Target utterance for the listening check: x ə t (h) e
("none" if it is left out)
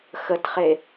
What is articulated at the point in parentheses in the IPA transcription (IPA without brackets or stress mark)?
χ